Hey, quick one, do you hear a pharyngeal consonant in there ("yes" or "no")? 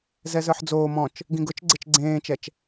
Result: yes